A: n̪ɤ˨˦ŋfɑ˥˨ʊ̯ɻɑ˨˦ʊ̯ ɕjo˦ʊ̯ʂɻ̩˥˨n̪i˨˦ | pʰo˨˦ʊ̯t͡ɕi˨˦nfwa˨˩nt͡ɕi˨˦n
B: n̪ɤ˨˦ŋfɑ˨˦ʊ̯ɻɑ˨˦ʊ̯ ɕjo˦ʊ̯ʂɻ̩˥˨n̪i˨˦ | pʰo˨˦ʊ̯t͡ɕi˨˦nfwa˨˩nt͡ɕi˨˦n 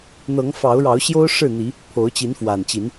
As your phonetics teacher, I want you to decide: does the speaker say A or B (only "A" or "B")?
B